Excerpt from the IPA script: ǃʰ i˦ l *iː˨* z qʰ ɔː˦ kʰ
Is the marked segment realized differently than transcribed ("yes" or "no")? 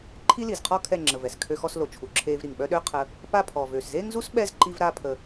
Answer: yes